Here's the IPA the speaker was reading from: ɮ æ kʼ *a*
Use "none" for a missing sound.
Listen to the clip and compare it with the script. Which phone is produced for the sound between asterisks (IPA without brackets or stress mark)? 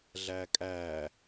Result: æ